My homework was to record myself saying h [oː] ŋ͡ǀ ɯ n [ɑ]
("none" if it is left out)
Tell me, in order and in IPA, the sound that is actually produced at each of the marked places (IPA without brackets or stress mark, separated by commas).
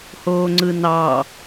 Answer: oː, ɑ